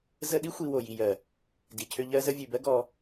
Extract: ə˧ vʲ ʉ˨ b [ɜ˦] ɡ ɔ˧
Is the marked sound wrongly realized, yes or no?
no